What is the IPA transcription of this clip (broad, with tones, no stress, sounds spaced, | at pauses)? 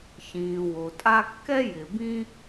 ç ĩː˨ w o˨ tʼ a˦ kː ɛ˥ j ɪ˨ b ĩ˦